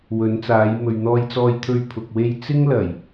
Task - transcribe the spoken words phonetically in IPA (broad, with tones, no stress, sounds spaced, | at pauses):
w ɵ˨˥ n t͡s aː˨˥ j m ɵ˨ ɥ n̪ ɔː˧ j t͡s ɔː˧ j t̪ʰ ɵ˧ ɥ pʰ ʊ˨ k̚ w e˧ j t͡s ɪ˥ ŋ l ɐ˨˩ j